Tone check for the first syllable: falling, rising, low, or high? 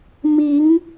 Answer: rising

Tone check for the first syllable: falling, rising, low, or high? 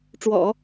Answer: low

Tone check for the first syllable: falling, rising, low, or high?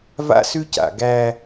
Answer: high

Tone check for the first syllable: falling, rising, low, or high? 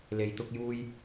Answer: low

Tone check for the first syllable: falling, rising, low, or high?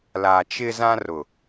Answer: low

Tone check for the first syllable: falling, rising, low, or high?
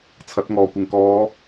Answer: rising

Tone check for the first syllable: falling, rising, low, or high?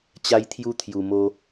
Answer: high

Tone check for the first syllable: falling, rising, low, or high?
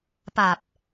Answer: low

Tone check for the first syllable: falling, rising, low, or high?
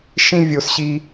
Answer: high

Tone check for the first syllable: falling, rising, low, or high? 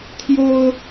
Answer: high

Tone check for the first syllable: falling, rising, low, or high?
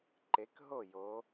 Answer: rising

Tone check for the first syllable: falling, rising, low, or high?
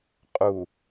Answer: low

